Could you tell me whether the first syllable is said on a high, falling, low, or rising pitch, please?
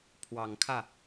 low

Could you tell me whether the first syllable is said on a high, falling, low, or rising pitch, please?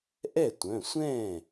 falling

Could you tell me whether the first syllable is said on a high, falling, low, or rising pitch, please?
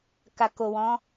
low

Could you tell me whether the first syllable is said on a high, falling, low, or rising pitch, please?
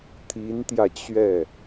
rising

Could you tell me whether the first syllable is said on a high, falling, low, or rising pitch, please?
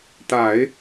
low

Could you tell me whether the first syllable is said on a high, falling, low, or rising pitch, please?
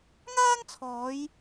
high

